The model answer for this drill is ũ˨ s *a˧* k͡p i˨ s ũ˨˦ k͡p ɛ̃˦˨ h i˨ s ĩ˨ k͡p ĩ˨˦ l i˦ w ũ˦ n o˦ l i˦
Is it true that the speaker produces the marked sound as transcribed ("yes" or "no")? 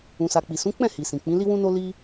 no